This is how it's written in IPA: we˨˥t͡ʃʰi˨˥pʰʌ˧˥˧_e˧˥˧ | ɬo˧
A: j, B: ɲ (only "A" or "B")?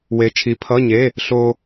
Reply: B